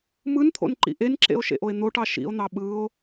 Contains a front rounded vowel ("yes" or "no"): no